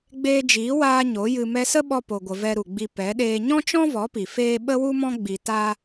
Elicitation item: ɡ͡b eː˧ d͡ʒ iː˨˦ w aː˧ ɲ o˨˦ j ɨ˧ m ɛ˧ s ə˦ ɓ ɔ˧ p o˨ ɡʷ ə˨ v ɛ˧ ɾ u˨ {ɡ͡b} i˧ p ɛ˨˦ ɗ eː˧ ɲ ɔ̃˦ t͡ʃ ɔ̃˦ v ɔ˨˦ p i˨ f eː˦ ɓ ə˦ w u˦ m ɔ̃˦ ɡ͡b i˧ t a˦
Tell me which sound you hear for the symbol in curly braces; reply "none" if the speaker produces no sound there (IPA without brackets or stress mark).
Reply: ɡ͡b